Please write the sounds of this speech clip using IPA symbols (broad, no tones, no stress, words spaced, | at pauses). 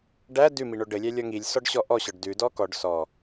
ɖæ dʉmiɳo ɖɘlʲæ lʲɔŋilʲ sɔɖɕɔʔɔɕɔɖ dʉdɔ kɔɖ sɔ